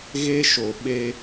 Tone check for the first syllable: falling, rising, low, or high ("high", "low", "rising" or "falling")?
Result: high